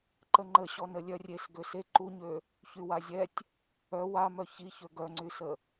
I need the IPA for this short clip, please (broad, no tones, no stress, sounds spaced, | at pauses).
ǃ ə ŋ͡ǃ ə ɕ ɔ n ə lʲ œ rʲ e s ɡ ø s e ǃ u ɲ ø | ç y w a zʲ ɛ tʲ | œ w a m œ ç i ç ø ɡ œ ŋ͡ǀ y s ə